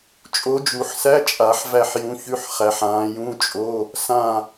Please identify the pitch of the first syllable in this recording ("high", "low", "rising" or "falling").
rising